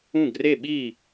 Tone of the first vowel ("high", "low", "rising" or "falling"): falling